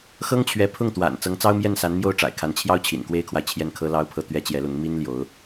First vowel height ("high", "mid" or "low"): mid